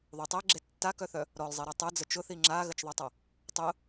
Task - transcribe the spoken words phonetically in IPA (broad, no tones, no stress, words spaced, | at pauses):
ðˤu tˤeɡ͡ǁe tːakœθœ | ɾɔlzˤeɾa tˤɯd͡zə t͡ʃʊθi ŋ͡ǁaɣət͡ʃðˤetˤa | tˤʊ